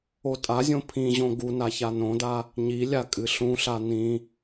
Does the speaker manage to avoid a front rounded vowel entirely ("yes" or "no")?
yes